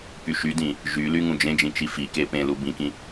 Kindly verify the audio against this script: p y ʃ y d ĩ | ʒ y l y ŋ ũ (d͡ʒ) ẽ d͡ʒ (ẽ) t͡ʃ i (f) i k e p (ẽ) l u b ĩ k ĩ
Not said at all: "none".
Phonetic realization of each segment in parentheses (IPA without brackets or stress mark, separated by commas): d͡ʒ, ĩ, f, ẽ